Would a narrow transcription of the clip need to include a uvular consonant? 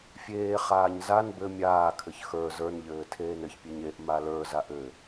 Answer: yes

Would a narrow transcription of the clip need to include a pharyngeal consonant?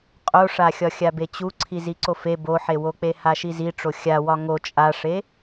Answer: yes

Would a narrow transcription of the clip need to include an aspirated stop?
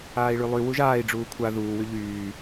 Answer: yes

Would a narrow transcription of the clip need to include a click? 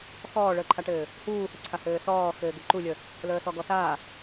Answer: yes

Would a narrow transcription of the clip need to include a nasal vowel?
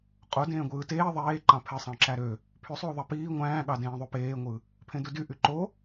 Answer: yes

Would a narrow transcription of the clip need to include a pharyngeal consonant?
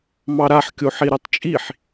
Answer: yes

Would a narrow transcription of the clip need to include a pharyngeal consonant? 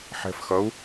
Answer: yes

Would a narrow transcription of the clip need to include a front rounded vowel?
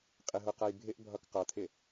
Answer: no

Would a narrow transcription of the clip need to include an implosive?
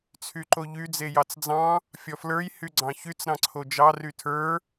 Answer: no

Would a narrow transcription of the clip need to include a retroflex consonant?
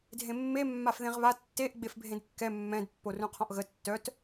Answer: no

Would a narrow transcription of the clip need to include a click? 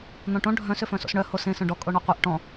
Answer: no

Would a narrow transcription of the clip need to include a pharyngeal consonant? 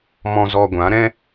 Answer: no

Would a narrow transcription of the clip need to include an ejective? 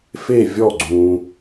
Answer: no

